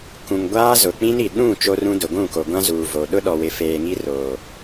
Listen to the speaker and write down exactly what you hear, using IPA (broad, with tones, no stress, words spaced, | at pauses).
kũ˨ŋɡʷaː˦ zʊ˨k͡pĩ˦ni˨ ɗũ˦˨ t͡ʃo˦rũ˦dʊ˨ ɡʷũ˦˨ko˨ ɡʷã˦zuː˨vo˨ ɗʊ˦ ɗɔ˨wɪ˨feː˨ ŋi˦roː˨